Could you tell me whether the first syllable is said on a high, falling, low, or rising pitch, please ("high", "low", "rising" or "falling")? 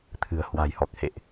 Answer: low